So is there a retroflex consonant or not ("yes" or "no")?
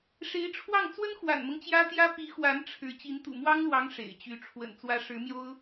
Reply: yes